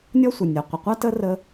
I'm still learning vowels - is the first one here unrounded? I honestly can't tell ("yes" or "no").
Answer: no